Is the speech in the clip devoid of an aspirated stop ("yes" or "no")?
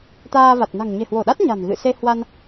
yes